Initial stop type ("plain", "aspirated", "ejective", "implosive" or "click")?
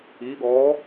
implosive